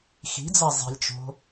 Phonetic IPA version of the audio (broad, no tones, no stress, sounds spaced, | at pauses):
x i̤ d͡z a zˤ i̤ lʲ t͡ʃ o̤